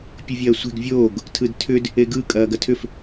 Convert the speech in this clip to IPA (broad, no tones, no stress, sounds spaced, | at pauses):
pʲ ɯ vʲ ɐː sʷ e̤ ɡ vʲ oː ɡ | tʰ ɯ d tʰ ʏ d | e ɡ ɯ kʼ ɐː ɡ ɐ tʰ ʏ f